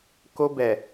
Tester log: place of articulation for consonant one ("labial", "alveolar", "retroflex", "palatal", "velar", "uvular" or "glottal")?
velar